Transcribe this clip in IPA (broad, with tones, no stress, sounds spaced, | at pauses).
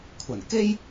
kʷʰ ɐ˨˩ n k e˥ j